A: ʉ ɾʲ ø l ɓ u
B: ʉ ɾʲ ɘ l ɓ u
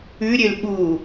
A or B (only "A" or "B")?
A